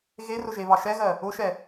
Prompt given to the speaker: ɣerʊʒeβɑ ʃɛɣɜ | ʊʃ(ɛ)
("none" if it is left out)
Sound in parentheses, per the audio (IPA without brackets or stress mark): ɛ